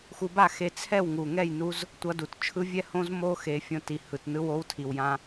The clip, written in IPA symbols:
xu˧ba˥˩xe˧ t͡sʰɛ˥˩wŋu˨˩ŋɛ˥˩jnu˧z | tʷʌ˧du˨˩t t͡ʃʰɯ˧vʲɛ˥˩ hõ˧zmo˧ xe˧˥ fʲõ˧ti˨˩hɯ˨˩t nɯ˧˥wo˧˥wtʰi˨˩wjã˧

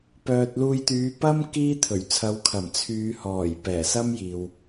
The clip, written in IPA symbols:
pœː˨t̚ luː˧jt̪yː˨˧ pɐ˥m kiː˥t̪ʰɵ˨˩ɥ t͡sʰɐ˨˧wkʰɐ˨˩m t͡sʰyː˨˧hɔː˨˩j pɛː˨˩sɐ˥m jiː˨w

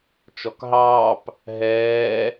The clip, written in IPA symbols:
t͡ʃɔkɦɑːp | ɦɛː

